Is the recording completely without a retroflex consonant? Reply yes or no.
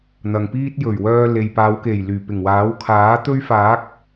yes